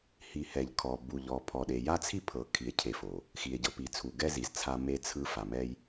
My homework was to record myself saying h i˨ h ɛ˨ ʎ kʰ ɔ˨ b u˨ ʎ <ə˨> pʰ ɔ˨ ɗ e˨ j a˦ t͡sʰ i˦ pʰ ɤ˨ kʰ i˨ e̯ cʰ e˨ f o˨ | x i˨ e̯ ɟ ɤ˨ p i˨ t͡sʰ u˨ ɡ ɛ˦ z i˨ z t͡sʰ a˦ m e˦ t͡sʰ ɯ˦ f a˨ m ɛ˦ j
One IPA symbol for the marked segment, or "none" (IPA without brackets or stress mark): ɔ˨